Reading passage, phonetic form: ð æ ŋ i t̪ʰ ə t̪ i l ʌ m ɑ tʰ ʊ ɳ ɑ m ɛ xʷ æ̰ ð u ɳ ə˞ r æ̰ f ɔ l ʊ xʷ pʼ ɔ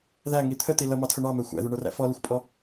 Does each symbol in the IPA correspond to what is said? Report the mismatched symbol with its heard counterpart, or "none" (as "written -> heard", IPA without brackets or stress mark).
none